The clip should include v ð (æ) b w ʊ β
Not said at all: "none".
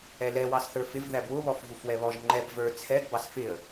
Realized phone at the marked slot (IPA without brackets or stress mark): æ